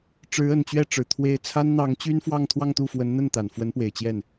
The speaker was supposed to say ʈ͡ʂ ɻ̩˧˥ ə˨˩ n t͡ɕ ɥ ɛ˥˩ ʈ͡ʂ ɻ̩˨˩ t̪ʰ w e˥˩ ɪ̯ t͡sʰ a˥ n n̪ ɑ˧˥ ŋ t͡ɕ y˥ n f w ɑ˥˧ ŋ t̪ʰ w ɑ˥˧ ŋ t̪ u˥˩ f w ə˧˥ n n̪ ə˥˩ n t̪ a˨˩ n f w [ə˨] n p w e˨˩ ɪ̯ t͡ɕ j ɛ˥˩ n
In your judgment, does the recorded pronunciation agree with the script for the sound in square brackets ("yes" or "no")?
no